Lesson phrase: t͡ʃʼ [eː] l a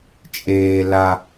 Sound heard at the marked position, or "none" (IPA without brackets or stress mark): eː